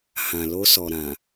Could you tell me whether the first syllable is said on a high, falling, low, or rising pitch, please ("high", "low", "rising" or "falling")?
low